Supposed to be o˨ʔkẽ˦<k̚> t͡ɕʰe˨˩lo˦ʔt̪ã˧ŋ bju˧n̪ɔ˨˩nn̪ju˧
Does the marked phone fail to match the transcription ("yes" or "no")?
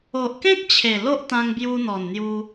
no